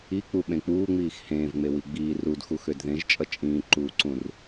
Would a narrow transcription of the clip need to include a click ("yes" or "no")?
yes